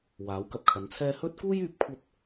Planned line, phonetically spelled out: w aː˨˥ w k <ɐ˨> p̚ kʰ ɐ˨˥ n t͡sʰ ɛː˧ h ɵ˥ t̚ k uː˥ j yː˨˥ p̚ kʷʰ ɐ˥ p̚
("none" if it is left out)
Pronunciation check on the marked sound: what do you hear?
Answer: ɐ˨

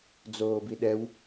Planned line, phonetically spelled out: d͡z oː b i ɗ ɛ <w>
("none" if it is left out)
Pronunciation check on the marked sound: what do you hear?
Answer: w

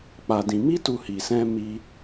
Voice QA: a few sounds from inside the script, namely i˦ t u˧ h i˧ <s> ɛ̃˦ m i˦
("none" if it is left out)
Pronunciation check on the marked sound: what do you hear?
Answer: s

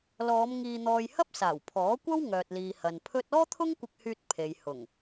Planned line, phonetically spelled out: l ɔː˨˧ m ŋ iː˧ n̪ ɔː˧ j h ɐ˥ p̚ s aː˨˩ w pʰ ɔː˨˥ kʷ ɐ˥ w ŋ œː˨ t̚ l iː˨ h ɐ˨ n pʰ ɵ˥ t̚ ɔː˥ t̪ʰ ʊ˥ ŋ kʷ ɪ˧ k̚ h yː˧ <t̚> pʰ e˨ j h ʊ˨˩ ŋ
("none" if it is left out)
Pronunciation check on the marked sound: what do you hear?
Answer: t̚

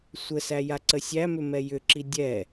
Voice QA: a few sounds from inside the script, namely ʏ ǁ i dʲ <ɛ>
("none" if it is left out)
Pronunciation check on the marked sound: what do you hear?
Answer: ɛ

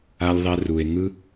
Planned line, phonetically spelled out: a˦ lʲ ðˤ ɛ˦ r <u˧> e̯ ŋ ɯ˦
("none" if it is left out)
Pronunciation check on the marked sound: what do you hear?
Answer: u˧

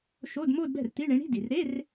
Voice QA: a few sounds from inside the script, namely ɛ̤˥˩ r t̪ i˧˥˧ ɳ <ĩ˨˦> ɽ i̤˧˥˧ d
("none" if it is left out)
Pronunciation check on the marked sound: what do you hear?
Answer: ĩ˨˦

